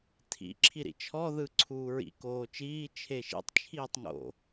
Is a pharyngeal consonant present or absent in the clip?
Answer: absent